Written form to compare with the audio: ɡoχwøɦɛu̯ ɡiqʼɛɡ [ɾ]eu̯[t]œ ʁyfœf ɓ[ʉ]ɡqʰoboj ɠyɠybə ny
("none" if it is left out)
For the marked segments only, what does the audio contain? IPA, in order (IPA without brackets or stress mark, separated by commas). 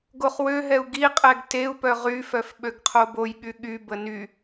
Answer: t, p, ø